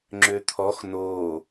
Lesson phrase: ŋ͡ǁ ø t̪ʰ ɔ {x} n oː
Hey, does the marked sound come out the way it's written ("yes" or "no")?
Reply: yes